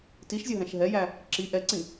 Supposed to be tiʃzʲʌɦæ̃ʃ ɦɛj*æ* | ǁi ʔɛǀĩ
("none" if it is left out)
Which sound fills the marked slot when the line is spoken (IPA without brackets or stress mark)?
æ